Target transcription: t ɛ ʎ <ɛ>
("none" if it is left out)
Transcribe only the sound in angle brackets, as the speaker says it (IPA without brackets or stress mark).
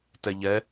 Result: ɛ